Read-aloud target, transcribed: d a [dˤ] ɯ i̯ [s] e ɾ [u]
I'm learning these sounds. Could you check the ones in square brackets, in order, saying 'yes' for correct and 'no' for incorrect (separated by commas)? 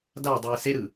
yes, yes, no